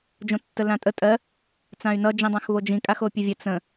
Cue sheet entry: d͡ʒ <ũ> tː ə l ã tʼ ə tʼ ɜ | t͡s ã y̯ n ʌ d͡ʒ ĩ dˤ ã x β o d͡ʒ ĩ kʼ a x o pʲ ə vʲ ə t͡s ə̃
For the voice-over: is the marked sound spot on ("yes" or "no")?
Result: no